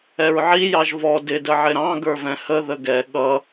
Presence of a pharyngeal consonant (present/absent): present